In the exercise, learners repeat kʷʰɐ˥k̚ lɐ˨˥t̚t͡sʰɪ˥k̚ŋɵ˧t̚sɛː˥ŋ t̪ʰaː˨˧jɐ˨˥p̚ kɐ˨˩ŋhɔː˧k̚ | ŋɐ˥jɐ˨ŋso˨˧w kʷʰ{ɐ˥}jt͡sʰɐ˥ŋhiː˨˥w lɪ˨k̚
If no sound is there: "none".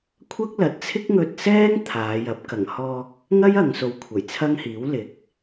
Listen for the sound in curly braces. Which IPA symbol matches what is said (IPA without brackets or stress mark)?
ɐ˨˩